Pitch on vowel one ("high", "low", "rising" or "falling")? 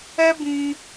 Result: high